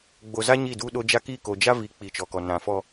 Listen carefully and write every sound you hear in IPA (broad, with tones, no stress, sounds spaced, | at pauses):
ɡ͡b o˨ z a˦ ɲ i˦˨ d u˦ ɗ o˦ d͡ʒ a˦ k i˦˨ k o˨ d͡ʒ a˦ v i˨˦ k͡p i˨ t͡ʃ ɔ˨ k ɔ˨ n ã˨ f ɔ˦